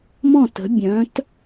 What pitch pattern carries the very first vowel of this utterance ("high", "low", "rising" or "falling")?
falling